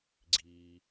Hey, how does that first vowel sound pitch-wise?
low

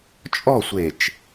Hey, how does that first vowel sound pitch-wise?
falling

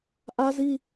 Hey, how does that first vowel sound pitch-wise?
high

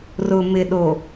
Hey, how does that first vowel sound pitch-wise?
low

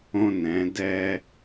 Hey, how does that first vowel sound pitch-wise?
high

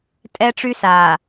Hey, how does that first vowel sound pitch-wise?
high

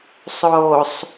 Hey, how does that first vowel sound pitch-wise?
low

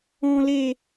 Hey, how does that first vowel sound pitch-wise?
low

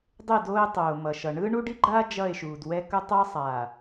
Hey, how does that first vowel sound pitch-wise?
falling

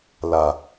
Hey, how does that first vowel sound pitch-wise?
low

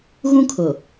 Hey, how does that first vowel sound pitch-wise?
high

